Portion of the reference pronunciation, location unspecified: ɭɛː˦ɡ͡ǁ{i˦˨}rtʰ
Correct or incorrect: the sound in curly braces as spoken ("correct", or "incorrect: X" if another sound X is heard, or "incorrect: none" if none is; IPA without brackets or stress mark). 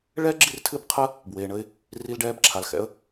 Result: correct